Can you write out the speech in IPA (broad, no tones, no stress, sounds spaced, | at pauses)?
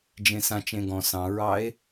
d͡ʒ ẽ s ã t͡ʃ ẽ ɡ ɔ̃ s ɑ̃ ɹ ɑ e̯